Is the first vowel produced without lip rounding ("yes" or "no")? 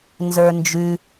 yes